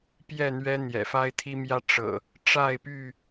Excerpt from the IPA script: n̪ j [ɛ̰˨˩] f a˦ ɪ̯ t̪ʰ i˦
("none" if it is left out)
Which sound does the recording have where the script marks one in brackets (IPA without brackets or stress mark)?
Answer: ɛ̰˨˩